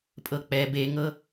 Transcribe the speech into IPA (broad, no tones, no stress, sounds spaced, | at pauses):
pʼ ɤ k͡p ɛ b e ŋ ɤ